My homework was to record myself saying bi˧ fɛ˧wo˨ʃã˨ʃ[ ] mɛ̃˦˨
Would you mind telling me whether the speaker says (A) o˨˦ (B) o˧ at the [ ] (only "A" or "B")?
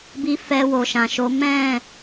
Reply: A